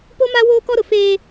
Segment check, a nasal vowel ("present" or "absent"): absent